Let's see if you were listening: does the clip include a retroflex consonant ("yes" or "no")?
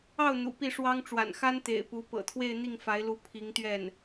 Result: yes